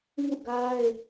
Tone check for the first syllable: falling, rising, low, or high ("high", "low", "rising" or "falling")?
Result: falling